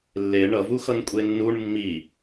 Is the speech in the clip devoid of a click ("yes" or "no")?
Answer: yes